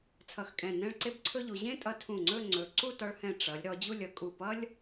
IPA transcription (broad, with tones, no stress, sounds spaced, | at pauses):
t͡sʰ ʌ˧˩ x kʼ ɛ̃˧˩ n ɛ̃˥˧ ɭ ǀ e˥ b ǀʰ ɵ˥ ʎ u˩˧ ʑ ẽ˥ tʼ ʌ˧ tʰ ũ˧˩ ŋ͡ǀ ɵ˥˧ ŋ͡ǀ ɵ˩˧ ǀ u˥˧ t ɔ˧ ɭ h ɛ̃˧˩ ʈ͡ʂ ʌ˩˧ lʲ ɾ ɔ˩˧ d͡ʑ u˥˧ lʲ ʌ˩˧ kʼ u˧˩ p ʌ˥ lʲ